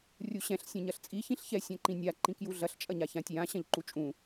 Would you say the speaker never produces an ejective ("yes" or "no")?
no